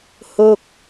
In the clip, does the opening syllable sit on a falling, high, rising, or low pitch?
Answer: falling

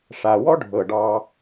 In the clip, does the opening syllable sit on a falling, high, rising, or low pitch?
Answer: low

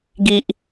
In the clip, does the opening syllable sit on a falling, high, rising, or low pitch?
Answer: low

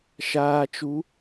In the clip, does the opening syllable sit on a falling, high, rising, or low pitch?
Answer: low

